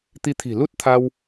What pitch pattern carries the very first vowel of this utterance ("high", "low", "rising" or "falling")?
rising